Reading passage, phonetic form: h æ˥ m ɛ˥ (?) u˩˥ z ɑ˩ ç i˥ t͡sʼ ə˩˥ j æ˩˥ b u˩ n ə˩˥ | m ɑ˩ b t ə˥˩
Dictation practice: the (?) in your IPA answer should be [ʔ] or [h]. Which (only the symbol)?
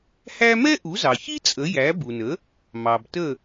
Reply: ʔ